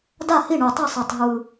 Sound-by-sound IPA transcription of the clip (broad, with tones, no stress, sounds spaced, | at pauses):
d a˥˩ h i˥˩ ɳ o˨˩ tˤ ʌ˥˩ sˤ e˨˩ tˤ ɦ ɯ˨˩